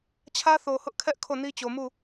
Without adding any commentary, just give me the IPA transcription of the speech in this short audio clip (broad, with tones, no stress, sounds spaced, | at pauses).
t͡ɕʰ ä˦ θ o˨ h ʊ˦ ʔ kʰ ɛ˦ ʔ kʰ o˦˨ n i˦ t͡ɕ o˨ m u˦˨